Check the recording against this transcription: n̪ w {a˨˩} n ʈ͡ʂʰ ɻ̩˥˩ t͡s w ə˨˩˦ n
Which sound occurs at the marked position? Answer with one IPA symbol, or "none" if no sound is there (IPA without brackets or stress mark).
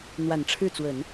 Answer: a˨˩